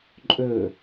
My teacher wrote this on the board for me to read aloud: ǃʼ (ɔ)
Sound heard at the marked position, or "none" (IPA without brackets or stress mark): ɵ